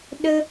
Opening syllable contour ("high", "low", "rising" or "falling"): high